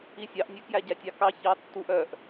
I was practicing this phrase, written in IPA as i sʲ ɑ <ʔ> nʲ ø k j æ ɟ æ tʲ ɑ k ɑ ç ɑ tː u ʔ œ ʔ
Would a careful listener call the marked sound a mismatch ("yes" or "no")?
no